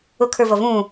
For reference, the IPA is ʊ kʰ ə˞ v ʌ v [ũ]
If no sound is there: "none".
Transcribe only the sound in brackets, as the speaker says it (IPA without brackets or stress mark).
ũ